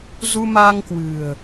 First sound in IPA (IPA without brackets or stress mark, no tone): z